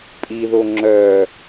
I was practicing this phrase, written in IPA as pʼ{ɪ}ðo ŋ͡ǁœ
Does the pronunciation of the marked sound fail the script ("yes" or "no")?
yes